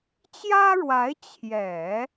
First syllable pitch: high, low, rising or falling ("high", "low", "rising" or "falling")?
high